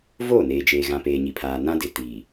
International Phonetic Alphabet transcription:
voː˦˨neː˨d͡ʒeː˨ɣã˨ peː˨ɲi˨pʰaː˨ nã˦dɪ˨tiː˨

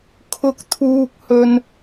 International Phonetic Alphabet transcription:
kʰʊ˥k̚t̪ʰuː˥k̚hɵ˥n

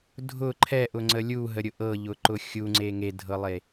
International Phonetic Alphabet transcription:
dʱʊ ǃʰɛʔʊŋ͡ǀə lʲuɦəɾʲʊ ʔɤʎʊǃʊ xʲuŋ͡ǀe ŋedʱɤlˠe

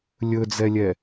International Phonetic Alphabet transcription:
lʲɵd͡zɛlʲɛ

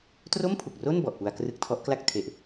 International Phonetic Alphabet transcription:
tro˥˩mpʰu˨˩k̚ro˥˩n bɔ˨˩ʔpu˧a̯krɯ˦˥k̚tʰɔ˦˥ʔ kla˥˩k̚ tʰe˨˩ʔ

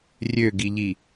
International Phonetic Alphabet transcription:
rʲøɡiʎi

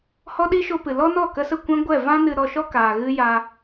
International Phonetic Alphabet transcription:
hɔ˦ɗi˦ʃo˧ pɨ˨ lɔ˦nɔ˦˨ kə˧sə˦˨kʷɛ̃˦ɡʷɛ˦˨ vã˦ nɨ˧ ɾɔ˧ʃɔ˦ kaː˨ɣɨ˦ ja˧

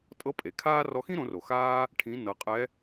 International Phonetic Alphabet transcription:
tʼɤ˧˥pʼe˩kʰaː˥ rɔ˧xĩ˥ɾõ˩˧ro˩ xaː˧ | ʈʰĩ˩˧ nɤ˩˧qʼɛ˧˥

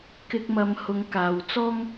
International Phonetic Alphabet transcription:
kɪ˧k̚ mɐ˨˧mhʊ˨˧ŋ kaː˨w t͡sɔː˥ŋ

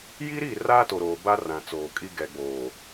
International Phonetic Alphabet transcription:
ji˦ɾi˦˨ raː˦to˨ɾoː˨ ba˦ rã˨t͡soː˨kʼi˦ ɡɛ˨ɡ͡boː˨

